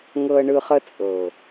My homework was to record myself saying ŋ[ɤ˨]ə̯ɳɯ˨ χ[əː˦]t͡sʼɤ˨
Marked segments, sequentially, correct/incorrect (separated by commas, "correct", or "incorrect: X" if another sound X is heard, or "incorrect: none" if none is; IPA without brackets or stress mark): correct, incorrect: ə˦